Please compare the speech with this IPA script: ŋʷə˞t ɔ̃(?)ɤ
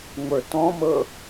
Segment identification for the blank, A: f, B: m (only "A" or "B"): B